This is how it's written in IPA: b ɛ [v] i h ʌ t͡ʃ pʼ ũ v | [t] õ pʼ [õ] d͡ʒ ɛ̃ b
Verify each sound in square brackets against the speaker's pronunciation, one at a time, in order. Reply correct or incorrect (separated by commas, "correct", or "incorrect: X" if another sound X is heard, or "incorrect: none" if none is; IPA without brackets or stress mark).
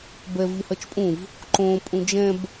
correct, incorrect: ǃ, incorrect: ũ